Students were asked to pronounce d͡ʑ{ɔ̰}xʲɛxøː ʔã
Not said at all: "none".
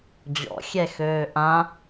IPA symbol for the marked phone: ɔ̰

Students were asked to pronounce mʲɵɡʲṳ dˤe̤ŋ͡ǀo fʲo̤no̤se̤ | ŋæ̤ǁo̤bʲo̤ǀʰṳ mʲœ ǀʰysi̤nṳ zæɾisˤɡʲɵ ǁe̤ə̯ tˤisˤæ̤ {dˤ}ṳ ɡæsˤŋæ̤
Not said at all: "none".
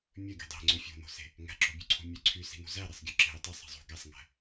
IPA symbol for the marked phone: zˤ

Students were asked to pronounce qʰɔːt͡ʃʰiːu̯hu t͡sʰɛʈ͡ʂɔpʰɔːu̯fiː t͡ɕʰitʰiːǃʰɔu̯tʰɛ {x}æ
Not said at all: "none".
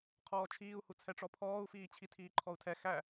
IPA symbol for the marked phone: x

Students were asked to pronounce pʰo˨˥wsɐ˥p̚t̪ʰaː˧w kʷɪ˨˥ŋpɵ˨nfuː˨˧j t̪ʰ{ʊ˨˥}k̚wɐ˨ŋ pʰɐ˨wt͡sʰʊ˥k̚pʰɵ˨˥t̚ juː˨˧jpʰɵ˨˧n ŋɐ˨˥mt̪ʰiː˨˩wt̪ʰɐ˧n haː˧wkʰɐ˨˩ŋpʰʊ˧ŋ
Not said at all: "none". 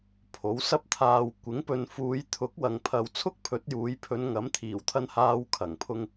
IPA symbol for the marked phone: ʊ˨˥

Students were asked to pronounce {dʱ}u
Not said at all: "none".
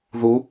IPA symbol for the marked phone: ð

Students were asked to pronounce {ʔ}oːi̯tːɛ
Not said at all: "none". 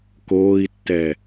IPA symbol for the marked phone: k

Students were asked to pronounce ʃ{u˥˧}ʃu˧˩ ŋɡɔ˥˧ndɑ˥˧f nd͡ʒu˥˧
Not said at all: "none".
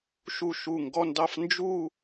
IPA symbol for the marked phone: u˧˩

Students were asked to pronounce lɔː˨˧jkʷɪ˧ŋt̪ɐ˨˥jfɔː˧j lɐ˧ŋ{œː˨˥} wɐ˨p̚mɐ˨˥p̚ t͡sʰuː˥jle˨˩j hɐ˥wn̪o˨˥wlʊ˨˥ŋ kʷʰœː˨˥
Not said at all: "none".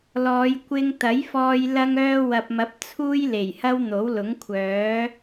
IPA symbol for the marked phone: œː˧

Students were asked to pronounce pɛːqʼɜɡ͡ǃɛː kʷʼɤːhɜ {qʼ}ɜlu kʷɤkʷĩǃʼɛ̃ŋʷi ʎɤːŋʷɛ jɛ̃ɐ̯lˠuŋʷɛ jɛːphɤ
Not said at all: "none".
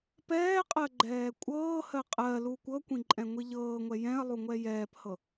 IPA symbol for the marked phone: qʼ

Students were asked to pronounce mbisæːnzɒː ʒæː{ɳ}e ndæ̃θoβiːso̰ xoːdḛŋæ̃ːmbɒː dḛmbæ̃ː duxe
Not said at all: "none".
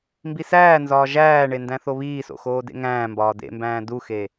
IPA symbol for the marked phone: ɳ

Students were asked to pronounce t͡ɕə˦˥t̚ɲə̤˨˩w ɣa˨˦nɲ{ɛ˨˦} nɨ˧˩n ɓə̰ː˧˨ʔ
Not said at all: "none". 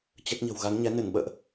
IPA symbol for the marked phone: ɛ˨˦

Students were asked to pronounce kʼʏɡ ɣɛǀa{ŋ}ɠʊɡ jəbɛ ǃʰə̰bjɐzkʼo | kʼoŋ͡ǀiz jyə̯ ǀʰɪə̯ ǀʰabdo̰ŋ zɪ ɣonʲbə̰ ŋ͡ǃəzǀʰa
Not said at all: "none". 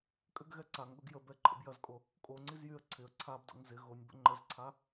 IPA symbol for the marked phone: ŋ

